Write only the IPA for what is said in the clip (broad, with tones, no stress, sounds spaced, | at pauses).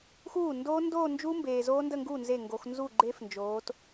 x uː˥˩ n d oː˦˥ n d oː˥˧ n d͡ʒ u˦˥ m b eː˨ z oː˦˥ n d ə˥˧ ŋ ɡ uː˥˩ n z e˥˩ ŋ ɡ o˨˦ x n z u˥˩ ɡ͡ǃ e˦˥ f n d͡ʒ oː˨˦ t